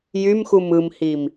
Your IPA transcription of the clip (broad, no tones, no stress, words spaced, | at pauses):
jymxum ɯmhim